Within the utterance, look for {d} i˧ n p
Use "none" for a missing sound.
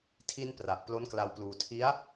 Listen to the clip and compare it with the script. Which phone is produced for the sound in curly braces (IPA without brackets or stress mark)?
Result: tʰ